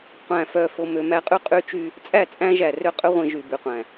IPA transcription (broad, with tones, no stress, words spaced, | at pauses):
qʷæ̃˨fœ˨ fo˨mø˨mæ˦qʼy˦ qʼy˦t͡ʃy˦ | t͡sʼæ˦˨t͡sʼæ̃˦ʒæ˨rø˦ qʼø˦ʁʷĩ˨ ʒy˨by˨ qʷæ̃˨